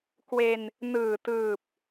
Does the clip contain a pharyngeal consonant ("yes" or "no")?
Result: no